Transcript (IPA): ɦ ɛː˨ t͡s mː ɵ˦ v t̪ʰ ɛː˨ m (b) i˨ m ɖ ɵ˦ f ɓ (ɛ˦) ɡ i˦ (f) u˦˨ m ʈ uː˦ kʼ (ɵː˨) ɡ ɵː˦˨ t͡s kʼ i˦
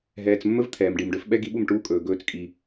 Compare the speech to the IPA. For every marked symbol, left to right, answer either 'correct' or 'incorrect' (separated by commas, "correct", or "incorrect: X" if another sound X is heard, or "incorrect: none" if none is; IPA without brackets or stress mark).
incorrect: ɖ, correct, incorrect: ɓ, correct